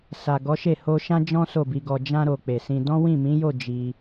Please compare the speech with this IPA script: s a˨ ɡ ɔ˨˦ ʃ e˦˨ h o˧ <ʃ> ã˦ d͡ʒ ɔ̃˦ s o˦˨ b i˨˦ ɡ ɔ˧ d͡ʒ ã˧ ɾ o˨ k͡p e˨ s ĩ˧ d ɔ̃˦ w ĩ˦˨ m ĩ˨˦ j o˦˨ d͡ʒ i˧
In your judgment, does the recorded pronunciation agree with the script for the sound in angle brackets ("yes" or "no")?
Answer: yes